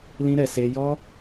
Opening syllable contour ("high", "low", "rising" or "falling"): high